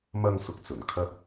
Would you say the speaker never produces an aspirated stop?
no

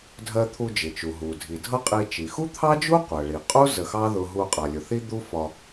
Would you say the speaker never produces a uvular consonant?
no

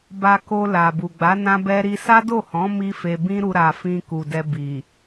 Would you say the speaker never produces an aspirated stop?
yes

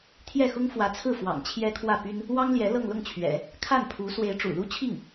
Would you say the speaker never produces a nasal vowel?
yes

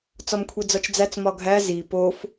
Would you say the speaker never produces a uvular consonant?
yes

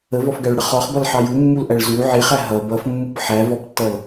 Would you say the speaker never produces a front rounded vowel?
yes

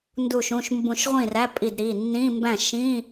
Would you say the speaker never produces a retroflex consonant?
yes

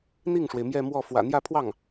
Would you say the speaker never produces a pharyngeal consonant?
yes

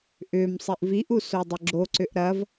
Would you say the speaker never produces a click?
no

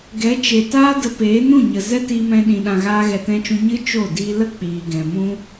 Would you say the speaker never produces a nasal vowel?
no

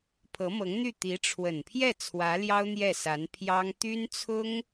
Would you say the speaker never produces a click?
yes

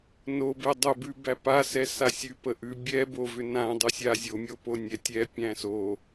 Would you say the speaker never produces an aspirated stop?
yes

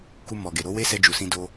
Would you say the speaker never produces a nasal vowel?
no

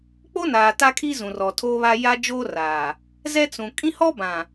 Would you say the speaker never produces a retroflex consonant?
yes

